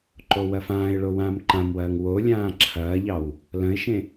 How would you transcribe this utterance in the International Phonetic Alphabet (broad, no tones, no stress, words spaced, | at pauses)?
ǃowɐfãːɪ̯ɭo wãːmǃãmwɐːŋ wolʲãː ǁʰɐːʎɑw | lɐ̃ɪ̯ʃẽ